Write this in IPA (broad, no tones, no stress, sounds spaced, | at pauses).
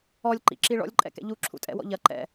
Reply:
ɔ lʲ ǃ ḭ ǁ i ɭ ɔ̰ lʲ ǃʼ ɛ̰ k ɛ̰ ʎ u ǁʰ ṵ tʼ ɛ̰ w ɔ̰ ʎ ɐ ǃ ɛ̰